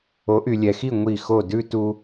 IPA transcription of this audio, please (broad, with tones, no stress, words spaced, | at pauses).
o˨˦ʔy˨lʲɛ˨xi˦˨ ŋʷi˦˨xo˦˨ dʉ˦tu˧